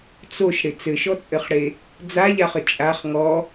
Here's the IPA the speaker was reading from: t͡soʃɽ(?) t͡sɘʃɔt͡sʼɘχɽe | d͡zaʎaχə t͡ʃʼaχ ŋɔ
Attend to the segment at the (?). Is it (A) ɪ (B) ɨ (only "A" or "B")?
A